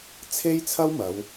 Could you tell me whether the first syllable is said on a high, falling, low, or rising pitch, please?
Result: high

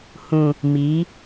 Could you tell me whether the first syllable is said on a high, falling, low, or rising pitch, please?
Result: low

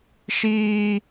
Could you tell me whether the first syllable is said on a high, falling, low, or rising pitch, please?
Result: high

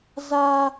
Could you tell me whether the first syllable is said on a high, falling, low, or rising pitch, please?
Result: high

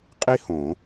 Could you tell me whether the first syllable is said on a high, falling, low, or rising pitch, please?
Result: high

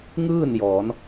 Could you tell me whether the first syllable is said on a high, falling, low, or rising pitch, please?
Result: falling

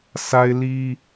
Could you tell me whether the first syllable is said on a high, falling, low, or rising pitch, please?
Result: high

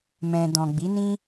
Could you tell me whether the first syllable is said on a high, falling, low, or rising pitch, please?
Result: low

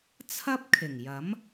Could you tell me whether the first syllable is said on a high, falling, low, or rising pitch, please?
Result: high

